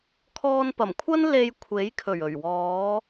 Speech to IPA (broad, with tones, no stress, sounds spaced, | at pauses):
kʰ ɔː˧ n p ɐ˨˩ m kʷʰ ɐ˥ n l e˧ j kʷʰ e˨˥ j kʰ ɵ˨˩ ɥ ɵ˨˩ ɥ w ɔː˨˧